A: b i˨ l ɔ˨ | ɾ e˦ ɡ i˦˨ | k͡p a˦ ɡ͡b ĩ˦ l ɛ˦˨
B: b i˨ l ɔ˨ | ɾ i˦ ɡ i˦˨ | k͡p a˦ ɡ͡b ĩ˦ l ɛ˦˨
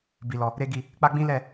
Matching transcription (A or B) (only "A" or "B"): A